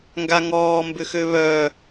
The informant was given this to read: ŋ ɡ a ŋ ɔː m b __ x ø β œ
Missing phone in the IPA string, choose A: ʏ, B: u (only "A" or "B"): A